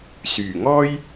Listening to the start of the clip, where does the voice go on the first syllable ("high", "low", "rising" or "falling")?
low